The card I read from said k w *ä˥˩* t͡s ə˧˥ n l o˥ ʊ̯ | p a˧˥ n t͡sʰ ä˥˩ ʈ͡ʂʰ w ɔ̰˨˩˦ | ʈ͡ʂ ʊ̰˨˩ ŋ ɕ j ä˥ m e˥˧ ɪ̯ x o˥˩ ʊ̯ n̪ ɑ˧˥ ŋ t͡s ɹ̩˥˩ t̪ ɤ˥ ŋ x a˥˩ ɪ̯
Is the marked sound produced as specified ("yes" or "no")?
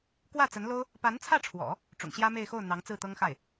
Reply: yes